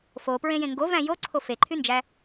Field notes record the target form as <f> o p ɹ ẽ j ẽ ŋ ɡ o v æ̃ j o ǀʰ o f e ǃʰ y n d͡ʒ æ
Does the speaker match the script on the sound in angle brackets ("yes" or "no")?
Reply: yes